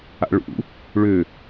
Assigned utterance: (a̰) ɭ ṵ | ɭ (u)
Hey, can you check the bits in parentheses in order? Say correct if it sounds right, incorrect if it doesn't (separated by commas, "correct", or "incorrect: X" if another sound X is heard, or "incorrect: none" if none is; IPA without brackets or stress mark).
correct, incorrect: ʏ